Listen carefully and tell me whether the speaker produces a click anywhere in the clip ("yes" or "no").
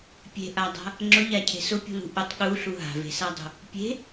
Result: yes